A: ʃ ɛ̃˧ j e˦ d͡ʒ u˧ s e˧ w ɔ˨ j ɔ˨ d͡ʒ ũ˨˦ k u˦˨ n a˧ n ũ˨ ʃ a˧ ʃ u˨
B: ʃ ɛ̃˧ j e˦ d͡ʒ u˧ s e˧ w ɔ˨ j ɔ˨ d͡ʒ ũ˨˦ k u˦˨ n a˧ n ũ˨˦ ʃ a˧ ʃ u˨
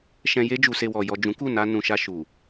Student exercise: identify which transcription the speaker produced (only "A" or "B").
A